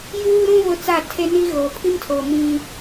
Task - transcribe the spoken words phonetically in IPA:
j uː˦ ɾ ũ˦ β ʊ˦ t͡s a˦˨ tʰ e˦ n i˦ ɣ oː˨ pʰ i˦ m tʰ oː˨ m ĩ˦

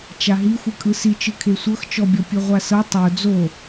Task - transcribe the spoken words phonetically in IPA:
t͡ʃ a ɦ i xʷ ɯ kʼ ɯ s i t͡ʃ ɯ kʰ e sʷ ɤ x t͡ʃ ɔ bʲ ɔ pʲ ɯ ʁʷ a s ɤ tˤ o d͡z o

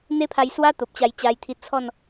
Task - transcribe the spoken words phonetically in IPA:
n̪ e˦ pʰ a˧ j s w a˦ t̪ o˨ p̚ t͡ɕ a˧ j t͡ɕ a˧ j t̪ʰ i˧ t͡sʰ ɔ˥˧ n

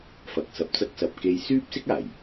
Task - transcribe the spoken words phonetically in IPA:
f ɐ˧ k̚ s ɐ˧ p̚ t͡s ɐ˥ k̚ s ɐ˧ p̚ k e˧ j s yː˥ p̚ s ɪ˥ k̚ aː˨˩ j

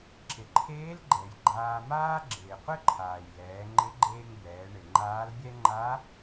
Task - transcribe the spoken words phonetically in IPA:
ǁ ɪ˩ ǃʰ eː˧˥ l ɡ͡ǃ ɛ˩ j ɡ͡ǃ aː˧ m aː˥ ɡ͡ǁ ɪː˩ qʷ ɪ˥ ǃʰ aː˩ j l ɛː˩˧ ŋ͡ǃ ɪ˧˥ ɡ͡ǃ eː˧ ŋ b ɛː˩˧ ɳ ɪ˩ ŋ͡ǃ aː˧˥ l bʲ ɛ˥ ŋ͡ǃ a˧˥

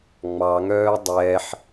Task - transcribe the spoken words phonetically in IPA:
ŋ͡m ɑ ŋ œː dˤ ɛː ħ

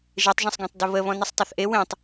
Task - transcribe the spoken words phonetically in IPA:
ʒ e tˤ ʒ ɐ̃ sˤ ɡ ɔ̃ tˤ d ə β ə β ɔ̃ n ə sˤ tˤ ɐ θ ʔ e w ẽ tˤ

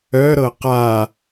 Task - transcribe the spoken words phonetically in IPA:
œ ɾ ɤ q a

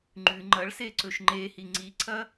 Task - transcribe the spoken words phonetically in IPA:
ŋ͡ǃ ʉ ŋ͡ǃ ɐ ɭ s e ǀ ɵ ʃ ŋ͡ǃ e h i ŋ͡ǀ i ǀʰ ɐ

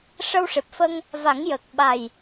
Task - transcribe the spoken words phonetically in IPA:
ʂ ə˧ w ʂ e˨˩ p̚ f ə˧ ŋ | v a˨˩˦ ŋ j ə˨˩ k̚ ɓ a˨˩ j

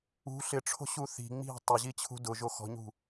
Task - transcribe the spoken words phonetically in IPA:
ṳ ɬ ɪ ʈ͡ʂʰ o̤ ɕ u θ i̤ ŋ͡m i̤ tˤ ʊ ʑ i t͡ɕʰ ṳ d ʊ ʒ o x ɔ̤ ɲ ṳ

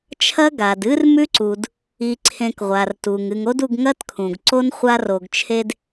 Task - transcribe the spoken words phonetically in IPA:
t͡ʃʰ ɐ˦ ɡ a˨ d ɨ˦ r m ʉ˦ ǀ u˨ d | i˧ ǀʰ ẽ˧ k ʁʷ a˨ r t u˨ ŋ ɨ˨ ŋ o˦ d u˧ ɡ ŋ ɐ˦ t kʰ ũ˨ ɡ ǀ o˦ n χʷ a˧ r o˨ ɡ t͡ʃʰ e˧ d

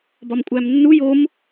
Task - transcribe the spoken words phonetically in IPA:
b ɒ m kʷʼ æ m nː u j o m

